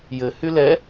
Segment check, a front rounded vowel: present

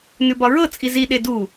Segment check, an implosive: present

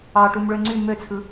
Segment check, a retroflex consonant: present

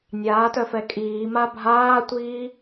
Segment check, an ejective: present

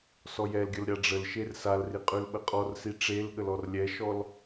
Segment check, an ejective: present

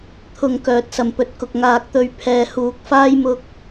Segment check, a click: absent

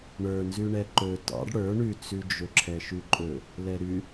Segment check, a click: present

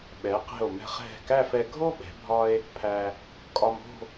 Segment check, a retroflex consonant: absent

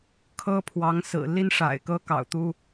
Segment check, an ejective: absent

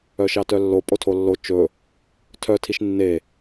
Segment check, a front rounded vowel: present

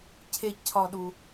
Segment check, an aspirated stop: present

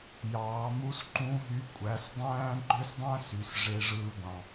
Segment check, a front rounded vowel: present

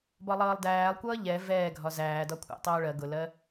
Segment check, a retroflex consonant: present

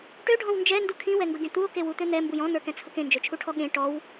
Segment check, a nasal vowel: present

